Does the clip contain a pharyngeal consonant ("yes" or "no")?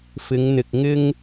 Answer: no